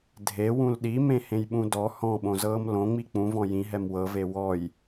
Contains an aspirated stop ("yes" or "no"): no